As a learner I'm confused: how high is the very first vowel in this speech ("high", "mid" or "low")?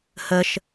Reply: mid